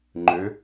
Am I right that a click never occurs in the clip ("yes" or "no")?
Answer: no